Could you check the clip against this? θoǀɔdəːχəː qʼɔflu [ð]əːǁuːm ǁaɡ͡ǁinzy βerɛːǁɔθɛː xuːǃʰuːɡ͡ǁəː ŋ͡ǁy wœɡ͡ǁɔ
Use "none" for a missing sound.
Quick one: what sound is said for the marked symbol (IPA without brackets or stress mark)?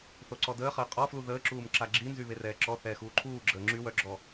ð